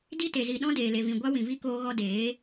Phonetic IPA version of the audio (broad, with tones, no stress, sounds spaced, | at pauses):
d i˦ t e˨ z i˨ ɗ ɔ̃˦ d eː˨ l e˨ v ĩ˨ ɡʷ a˦ w ĩ˨ v i˦ k oː˧ ɣ ɔ˧ d eː˨˦